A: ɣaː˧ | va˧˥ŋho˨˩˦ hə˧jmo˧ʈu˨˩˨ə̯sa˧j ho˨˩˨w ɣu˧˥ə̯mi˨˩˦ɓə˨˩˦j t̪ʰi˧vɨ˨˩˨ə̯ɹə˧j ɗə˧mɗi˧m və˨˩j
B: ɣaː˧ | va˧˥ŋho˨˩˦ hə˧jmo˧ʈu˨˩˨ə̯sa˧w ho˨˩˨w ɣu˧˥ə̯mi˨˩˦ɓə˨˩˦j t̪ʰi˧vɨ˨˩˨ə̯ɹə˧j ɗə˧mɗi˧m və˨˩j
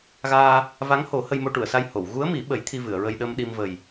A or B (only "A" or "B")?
A